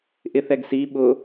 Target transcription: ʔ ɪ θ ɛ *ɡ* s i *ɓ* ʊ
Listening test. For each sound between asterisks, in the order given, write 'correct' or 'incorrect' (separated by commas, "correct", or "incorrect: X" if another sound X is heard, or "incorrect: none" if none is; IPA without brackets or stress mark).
correct, correct